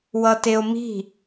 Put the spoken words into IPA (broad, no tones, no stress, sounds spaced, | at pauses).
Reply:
w ʌ t e o̯ m i̤